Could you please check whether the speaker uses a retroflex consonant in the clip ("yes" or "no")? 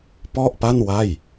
no